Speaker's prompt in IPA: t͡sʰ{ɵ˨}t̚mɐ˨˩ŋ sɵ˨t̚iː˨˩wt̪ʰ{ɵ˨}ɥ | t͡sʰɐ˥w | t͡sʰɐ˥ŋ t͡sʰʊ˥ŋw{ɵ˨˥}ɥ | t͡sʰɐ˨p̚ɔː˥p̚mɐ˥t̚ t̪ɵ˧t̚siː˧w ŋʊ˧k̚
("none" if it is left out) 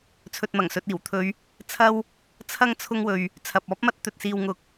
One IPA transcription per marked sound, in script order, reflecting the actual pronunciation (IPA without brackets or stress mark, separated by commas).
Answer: ɵ˨, ɵ˨˧, ɵ˧